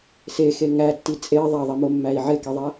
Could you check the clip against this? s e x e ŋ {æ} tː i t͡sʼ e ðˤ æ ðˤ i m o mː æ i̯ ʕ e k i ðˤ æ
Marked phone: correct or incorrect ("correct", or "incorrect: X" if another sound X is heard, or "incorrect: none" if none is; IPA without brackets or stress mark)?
correct